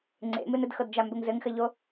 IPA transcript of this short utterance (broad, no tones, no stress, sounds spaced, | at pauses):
ŋ͡ǀ ḛ m ɨ n ɘ d x ɤ d d͡ʒ a m b ɘ ŋ z ɘ ŋ x ɘ ʎ o